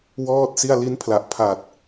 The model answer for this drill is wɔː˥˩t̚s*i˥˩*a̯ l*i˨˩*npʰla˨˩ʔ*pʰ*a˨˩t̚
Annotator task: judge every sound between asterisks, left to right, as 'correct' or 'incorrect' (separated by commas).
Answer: correct, incorrect, correct